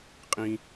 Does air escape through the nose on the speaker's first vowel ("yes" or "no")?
yes